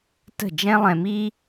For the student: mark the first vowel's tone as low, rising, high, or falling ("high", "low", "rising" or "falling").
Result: falling